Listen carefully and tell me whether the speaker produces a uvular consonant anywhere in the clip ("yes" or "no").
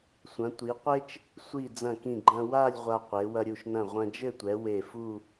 yes